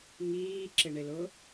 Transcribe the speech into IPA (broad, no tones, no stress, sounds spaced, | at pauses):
ŋ iː ǁ ɪ ɳ ɪ l ʊ